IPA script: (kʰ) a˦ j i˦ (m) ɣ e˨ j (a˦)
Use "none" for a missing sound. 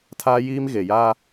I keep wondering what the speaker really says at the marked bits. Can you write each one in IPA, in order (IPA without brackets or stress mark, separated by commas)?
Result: tʰ, m, a˦